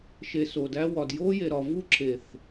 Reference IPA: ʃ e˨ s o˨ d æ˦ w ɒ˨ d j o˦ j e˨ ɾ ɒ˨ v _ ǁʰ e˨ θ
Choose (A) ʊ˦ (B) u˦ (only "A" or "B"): B